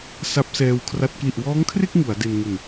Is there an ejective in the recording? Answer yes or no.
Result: no